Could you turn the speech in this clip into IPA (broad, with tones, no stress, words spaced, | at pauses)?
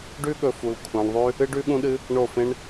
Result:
ɖʉ˦ɠɵ˧ fu˧l kʷʰã˧ɳðˤʉ˦ | ɨ˦ɖʉ˦ɠũ˦ɗɨ˦ | ɳo˦˨fẽ˦ɳ